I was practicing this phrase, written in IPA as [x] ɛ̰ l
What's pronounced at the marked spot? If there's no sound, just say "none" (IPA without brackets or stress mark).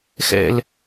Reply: x